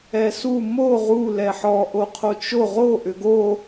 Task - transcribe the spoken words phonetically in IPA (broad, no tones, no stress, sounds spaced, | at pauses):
ɛ s u m o ʁ u l ɛ ħ ɔ ʔ o qʰ o t͡ʃ o ʁ o ʔ ʏ ɡ o